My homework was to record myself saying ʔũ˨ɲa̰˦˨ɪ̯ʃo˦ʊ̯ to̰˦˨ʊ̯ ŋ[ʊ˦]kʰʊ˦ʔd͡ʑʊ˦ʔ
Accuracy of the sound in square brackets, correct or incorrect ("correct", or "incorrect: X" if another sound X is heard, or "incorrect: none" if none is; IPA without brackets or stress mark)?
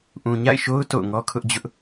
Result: incorrect: ɔ˦